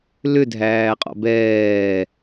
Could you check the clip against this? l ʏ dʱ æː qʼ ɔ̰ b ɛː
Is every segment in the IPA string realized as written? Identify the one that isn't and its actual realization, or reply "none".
none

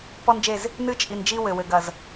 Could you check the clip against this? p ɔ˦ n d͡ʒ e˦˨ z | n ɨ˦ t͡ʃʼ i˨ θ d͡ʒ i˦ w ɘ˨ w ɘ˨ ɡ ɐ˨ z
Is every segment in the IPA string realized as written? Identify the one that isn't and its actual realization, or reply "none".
θ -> n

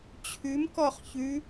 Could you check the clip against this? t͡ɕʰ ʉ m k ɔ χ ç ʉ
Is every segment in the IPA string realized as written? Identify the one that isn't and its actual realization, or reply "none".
none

